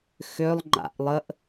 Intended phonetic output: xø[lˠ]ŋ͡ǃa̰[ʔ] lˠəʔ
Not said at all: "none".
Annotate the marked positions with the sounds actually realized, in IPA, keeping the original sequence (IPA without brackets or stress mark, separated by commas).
lˠ, ʔ